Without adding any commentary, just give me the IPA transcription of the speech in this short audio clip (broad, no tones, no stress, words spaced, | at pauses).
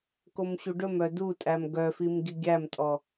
komɕuɖɵmœ dutʼæm ɡœfim ɡiɡʲæmtʼɔ